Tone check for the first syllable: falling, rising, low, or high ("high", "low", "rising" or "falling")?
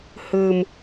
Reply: low